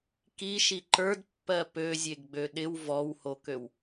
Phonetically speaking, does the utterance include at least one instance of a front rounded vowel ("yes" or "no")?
yes